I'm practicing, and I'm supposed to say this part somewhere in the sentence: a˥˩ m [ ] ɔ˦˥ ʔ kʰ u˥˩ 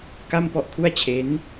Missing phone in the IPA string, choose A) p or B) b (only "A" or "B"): A